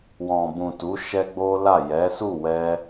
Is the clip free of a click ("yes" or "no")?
yes